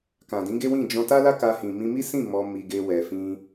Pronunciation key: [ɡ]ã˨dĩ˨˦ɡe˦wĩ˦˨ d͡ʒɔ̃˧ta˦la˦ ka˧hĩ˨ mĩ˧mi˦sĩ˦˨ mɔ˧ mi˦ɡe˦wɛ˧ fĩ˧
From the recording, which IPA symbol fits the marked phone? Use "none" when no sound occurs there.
k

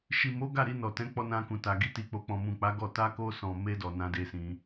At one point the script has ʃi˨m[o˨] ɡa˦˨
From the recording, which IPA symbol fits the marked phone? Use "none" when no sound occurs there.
o˨˦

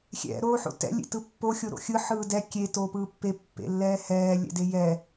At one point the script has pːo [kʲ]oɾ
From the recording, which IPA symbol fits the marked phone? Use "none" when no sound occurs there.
xʲ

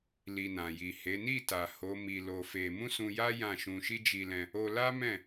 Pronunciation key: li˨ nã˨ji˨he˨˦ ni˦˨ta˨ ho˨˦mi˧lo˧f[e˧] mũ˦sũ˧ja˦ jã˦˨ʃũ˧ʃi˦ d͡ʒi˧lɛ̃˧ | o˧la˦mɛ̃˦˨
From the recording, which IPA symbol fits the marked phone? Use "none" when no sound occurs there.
e˧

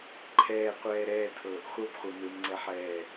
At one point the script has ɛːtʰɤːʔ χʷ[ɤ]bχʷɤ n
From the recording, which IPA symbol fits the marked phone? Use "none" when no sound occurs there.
ɤ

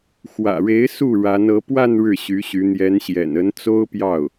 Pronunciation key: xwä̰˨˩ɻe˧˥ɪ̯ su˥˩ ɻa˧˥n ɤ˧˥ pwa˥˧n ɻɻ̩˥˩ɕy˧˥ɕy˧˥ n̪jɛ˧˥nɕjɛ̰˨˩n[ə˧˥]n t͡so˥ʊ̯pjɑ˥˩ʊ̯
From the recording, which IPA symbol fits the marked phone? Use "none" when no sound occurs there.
ə˧˥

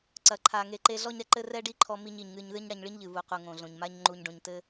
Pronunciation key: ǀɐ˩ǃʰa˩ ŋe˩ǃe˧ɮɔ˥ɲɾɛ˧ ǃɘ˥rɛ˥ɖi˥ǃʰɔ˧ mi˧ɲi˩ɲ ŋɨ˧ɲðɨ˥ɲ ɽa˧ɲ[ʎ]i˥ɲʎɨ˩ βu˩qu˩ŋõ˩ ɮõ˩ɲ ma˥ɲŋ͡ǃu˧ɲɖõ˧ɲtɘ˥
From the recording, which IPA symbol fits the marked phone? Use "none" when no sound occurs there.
ɭ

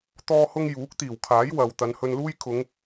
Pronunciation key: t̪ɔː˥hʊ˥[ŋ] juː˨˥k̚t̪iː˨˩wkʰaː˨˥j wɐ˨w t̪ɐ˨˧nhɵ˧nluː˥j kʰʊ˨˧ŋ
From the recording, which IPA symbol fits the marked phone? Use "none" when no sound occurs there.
ŋ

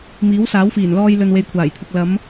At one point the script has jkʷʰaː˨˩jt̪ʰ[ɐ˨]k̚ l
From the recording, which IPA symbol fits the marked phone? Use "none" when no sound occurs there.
ɐ˨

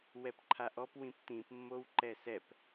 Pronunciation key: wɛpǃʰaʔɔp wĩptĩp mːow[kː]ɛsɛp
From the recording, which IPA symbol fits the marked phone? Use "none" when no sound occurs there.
ǃ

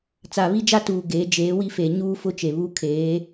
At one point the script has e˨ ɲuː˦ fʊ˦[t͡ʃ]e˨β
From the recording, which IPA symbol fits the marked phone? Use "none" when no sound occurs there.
t͡ʃ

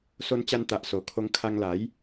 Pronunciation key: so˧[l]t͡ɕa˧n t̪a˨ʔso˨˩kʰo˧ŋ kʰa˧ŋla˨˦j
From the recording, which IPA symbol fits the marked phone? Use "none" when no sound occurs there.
n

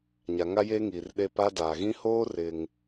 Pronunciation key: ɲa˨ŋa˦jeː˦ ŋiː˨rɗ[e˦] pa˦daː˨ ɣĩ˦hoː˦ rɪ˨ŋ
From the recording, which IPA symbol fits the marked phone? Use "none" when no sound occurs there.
e˦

